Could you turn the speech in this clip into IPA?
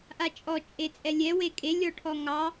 ʔ a t͡ʃʼ ɔ t͡ʃʼ e t͡sʼ ɛ lʲ ɛ w e kʼ e lʲ ɔ ʈʰ ɔ ŋ ɑ

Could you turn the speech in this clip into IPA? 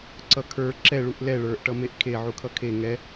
ǀ ʌ kʰ ə˞ ǁ ɛ ɭ u ʔ l ɛ ɭ ə˞ ʔ ʈ ʌ m e ʔ kʰ e ʕ u kʰ ʌ kʰ e ŋ ɛ

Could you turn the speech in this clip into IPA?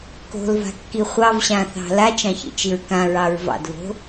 k o̤ l v a̤ kː i χʷ ɑ v ɕ ã θ ɑ̤ l a t͡ʃ ɑ̃ ç ḭ t͡ʃ i ɹ k ã ɹ ɑ ɹ v ɑ̰ d v o̤

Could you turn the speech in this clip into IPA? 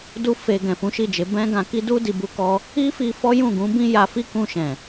d u˦ f e˧ ɡ ɛ̃˨ f ũ˨˦ ʃ i˦˨ d͡ʒ e˨˦ b ɛ̃˦ ɡ ã˧ k i˦ d u˦ d i˧ b u˦ k ɔ˦ | i˦ f i˧ f ɔ˦ j ũ˦˨ ɡ ũ˨˦ b ĩ˦ j a˧ f i˦ k ũ˧ ʃ ɛ̃˨

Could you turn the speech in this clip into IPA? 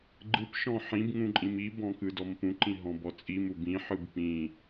ɡ͡ǃ ɯ p ʃ ɔ̃ ħ ĩ b ŋ ũ ǃʼ ĩ m i b ɔ̃ k ɯ d ɔ m p ũ ǃ ĩ ɦ ɔ̃ b ɔ t͡sʼ i m u b ĩ ħ ɯ b p ĩ

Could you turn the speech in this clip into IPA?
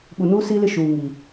ɓ u˨ n uː˦ s iː˦ l ɪ˦˨ ʃ uː˨ ŋ iː˨

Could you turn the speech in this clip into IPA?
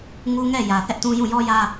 ŋ u˦ ŋ ɛ˦˨ j ä˨ θ ɛ˦ ʔ t ũ˦ j ũ˦˨ j ɔ˦ j ä˦

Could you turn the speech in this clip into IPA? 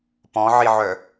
p ɔ̃ ʕ i ʕ œ

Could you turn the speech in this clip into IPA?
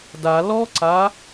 d a l ɔ ǀ a

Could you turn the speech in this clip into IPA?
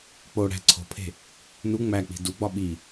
k͡p o ɽ æ̤ ǀʰ o̤ pʰ e̤ | n u ŋ͡m æ k͡p i̤ d u ɡ͡b ɒ ɓ i

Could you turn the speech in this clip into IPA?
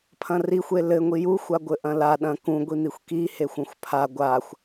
pʰ ɐ̃ r i xʷ e l ɘ ŋʷ i j u xʷ a ɡʷ ɘ ʔ ɐ̃ l a ɗ ɐ̃ k ũ ɡʷ i n̪ i xʷ k i h e xʷ õ xʷ pʰ a ɡʷ a xʷ

